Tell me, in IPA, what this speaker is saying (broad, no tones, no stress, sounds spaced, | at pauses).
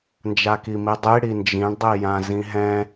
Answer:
n d͡ʒ a k i m i dˤ i ɽ i n d͡ʒ ĩ ɳ dˤ i j ã z ĩ ɦ ɛ̃